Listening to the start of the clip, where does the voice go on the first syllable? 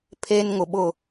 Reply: high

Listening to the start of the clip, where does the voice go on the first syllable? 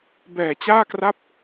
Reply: low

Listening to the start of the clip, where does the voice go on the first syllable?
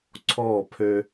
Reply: falling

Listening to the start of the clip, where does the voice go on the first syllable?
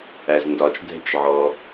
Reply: low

